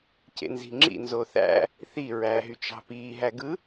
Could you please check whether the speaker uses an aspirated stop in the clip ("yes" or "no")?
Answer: no